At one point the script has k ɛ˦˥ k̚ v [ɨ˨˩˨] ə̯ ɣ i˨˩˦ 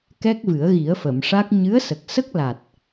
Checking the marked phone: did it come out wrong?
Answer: yes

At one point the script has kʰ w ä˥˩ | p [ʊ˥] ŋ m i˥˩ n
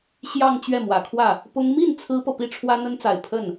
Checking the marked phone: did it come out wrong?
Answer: no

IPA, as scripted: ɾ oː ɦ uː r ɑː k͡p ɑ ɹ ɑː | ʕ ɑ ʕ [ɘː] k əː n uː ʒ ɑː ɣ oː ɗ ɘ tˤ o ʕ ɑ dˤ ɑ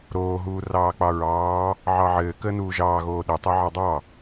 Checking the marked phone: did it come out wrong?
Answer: no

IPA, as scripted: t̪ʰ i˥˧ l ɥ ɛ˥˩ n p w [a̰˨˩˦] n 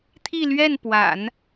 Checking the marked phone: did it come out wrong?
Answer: no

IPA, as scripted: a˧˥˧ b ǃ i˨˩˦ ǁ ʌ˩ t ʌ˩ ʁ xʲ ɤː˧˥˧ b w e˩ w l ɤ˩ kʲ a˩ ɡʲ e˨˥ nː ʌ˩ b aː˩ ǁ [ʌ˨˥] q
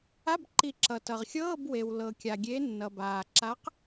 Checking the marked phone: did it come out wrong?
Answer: yes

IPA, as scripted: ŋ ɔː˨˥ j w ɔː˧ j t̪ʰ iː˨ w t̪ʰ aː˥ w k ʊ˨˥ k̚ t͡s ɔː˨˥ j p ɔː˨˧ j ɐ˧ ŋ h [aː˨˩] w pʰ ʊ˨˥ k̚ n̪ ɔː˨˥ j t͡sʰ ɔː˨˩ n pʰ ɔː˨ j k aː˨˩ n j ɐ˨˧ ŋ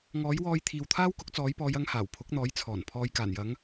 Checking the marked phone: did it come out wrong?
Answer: no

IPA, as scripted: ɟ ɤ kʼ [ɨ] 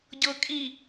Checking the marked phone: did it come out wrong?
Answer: yes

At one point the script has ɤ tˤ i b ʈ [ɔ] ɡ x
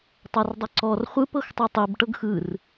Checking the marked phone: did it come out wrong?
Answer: yes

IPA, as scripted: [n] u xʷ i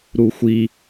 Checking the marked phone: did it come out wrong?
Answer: yes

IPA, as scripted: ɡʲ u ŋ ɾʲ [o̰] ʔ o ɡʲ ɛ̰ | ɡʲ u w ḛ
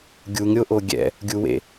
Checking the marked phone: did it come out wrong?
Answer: yes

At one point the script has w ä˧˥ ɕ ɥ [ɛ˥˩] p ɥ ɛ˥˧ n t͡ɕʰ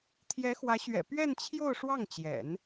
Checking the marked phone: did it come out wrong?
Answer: yes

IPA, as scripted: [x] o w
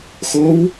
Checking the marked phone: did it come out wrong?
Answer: no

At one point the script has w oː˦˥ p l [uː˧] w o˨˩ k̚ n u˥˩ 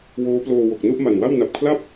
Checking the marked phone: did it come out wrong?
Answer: yes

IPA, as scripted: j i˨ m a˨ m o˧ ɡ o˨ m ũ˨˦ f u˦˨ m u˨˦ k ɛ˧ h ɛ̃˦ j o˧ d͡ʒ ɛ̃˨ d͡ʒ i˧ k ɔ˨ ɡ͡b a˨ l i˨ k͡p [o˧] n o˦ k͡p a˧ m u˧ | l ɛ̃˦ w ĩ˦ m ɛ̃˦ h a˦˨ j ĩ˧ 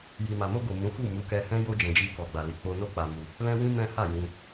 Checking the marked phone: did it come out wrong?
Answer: no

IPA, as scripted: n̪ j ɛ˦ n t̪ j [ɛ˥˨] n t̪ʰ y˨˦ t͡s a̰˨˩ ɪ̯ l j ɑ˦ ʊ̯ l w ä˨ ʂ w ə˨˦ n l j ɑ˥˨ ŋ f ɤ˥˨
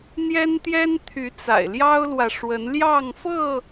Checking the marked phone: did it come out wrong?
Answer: yes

